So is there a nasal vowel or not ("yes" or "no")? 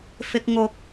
no